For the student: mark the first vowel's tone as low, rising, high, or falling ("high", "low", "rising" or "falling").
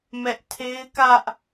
high